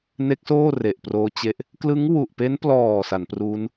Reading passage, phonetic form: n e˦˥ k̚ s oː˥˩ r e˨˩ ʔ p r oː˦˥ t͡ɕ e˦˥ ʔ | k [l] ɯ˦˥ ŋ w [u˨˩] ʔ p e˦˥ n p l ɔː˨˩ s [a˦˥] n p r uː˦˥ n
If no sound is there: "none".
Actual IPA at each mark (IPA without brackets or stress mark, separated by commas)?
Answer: l, u˨˩, a˩˦